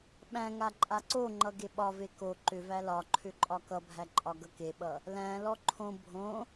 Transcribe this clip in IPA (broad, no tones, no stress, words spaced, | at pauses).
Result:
ɓæ̃ŋa ǃʼaǀoŋ͡ǃʌ ɡeɓɒve ko ǃʏvæ lɒǃʰʏ ǃʼɒkʌbʱæ ǃʼɒɡʌkeɓʌ | læ̃lɔ ǃʰõ bʱõ